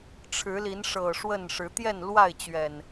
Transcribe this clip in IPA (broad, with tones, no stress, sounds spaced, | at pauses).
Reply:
ʈ͡ʂʰ ɻ̩˨˦ l i˨˦ n ʂ ɤ˨˩ ʂ w ə˥˨ n ʂ ɻ̩˨˦ t̪ j ɛ˥˨ n l w a˥˨ ɪ̯ t͡ɕ ɥ ɛ˨˩ n